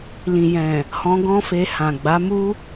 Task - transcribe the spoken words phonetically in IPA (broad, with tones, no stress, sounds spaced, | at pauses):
l ĩ˨ j ɛ̃˨ | h ɔ̃˧ ɡ ɔ̃˦ f e˧ h ã˨ ɡ͡b a˨˦ m u˦